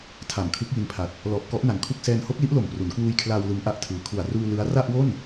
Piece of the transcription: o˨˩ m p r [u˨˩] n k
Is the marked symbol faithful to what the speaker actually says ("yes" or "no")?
no